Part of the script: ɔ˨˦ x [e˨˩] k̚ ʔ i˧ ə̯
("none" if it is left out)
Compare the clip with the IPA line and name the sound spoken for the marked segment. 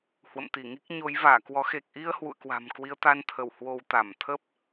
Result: e˨˩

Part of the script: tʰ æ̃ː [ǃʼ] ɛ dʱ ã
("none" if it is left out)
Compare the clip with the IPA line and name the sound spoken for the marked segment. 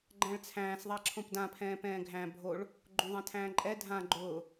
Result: ǃʼ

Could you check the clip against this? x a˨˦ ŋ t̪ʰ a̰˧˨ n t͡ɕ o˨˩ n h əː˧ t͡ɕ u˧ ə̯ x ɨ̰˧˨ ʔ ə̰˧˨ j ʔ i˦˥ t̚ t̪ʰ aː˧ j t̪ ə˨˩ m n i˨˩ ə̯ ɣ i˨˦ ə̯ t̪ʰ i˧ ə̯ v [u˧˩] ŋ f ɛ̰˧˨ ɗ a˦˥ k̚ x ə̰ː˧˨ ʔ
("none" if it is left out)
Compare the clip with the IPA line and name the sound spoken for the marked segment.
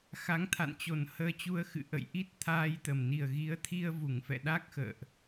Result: u˧˩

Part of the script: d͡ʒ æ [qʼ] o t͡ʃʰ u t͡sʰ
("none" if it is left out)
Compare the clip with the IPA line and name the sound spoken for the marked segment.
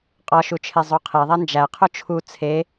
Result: qʰ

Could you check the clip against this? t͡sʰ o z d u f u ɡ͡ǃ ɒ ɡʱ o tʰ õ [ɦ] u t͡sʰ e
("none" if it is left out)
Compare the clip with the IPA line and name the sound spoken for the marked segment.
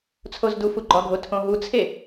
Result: ɦ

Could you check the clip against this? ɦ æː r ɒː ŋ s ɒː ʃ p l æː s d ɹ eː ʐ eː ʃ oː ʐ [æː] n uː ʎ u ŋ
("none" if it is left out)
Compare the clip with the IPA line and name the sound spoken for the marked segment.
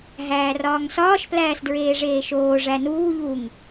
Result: æ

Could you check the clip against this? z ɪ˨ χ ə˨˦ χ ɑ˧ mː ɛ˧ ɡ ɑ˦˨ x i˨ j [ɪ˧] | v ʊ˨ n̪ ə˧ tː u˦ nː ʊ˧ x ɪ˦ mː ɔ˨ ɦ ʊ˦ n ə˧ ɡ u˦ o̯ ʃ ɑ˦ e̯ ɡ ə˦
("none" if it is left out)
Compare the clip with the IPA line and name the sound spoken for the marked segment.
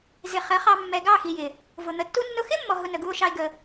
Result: ɪ˨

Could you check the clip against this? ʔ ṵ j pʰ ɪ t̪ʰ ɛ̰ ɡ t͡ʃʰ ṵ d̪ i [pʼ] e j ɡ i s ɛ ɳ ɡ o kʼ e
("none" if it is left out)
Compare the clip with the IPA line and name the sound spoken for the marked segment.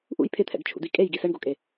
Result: kʼ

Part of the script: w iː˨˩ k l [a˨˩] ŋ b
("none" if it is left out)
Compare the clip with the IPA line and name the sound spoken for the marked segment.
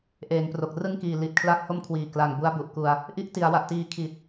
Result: a˨˩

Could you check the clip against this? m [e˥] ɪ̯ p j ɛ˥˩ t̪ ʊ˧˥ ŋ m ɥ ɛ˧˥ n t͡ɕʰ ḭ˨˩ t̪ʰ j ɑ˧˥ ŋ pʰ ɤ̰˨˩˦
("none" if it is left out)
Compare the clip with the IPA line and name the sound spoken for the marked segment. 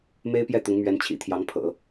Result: e˥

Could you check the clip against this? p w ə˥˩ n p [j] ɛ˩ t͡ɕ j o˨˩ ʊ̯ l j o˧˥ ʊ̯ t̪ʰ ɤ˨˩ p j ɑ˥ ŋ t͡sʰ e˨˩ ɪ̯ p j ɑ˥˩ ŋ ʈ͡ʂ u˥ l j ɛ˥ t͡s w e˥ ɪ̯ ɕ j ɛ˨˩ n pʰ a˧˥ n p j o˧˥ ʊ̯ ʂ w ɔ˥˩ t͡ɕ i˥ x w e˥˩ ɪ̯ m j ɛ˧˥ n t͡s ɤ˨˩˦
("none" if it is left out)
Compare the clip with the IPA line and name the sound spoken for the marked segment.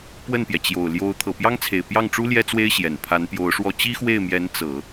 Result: j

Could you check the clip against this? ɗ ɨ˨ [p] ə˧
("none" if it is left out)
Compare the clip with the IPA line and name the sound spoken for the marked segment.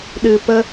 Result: p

